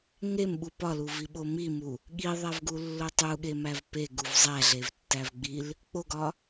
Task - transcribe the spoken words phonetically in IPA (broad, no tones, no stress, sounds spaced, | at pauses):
ŋ e m ɓ u p ɒ l u v i ɓ o m i m u | ɠ i ðˤ æ v ɡ u lː o tˤ u ɠ e m æ v p e ɡ u v zˤ æ ɮ e v tː æ v ɡ͡b i l | k͡p o ɡ ɒ